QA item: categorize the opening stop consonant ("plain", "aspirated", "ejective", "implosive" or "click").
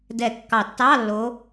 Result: plain